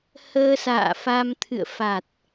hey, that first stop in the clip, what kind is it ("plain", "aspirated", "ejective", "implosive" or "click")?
aspirated